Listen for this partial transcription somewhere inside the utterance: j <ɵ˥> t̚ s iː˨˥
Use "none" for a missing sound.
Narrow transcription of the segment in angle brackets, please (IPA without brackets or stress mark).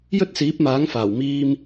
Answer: ɵ˥